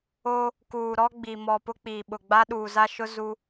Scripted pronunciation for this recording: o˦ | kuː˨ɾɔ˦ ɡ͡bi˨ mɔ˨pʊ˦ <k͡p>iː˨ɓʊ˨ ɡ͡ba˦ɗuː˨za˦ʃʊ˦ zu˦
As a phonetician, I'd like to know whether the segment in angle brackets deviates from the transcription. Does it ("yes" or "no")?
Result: no